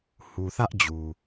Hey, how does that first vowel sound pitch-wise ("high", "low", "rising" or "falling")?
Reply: low